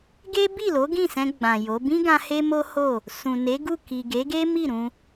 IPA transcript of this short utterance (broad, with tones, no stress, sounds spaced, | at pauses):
ɡ e˦ b i˦˨ l o˨˦ ɡ ĩ˦˨ s ɛ̃˧ ɡ͡b ã˨ j o˨˦ b ĩ˦ ɡ ã˧ h e˦ m o˦ h o˦˨ | s ũ˨ n e˨˦ ɡ u˦˨ k i˨ ɡ e˨˦ ɡ e˦ m i˦˨ ɾ ũ˧